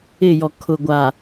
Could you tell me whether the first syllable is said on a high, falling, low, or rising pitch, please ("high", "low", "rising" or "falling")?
falling